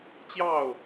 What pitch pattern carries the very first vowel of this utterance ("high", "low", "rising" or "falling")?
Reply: falling